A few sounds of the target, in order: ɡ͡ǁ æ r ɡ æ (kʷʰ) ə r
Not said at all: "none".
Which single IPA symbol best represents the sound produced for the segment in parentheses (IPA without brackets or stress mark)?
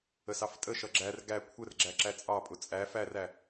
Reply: kʷʰ